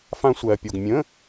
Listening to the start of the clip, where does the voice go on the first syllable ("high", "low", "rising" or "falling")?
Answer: high